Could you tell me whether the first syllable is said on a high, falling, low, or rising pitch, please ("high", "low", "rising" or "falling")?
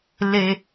low